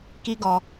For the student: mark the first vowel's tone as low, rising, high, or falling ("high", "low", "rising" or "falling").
high